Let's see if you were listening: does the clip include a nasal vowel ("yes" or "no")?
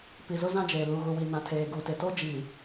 yes